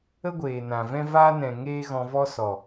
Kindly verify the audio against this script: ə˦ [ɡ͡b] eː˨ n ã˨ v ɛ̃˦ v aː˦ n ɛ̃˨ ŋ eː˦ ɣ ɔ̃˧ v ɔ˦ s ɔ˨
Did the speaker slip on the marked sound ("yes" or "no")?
yes